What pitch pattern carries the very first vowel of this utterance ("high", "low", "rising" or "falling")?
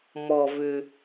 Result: low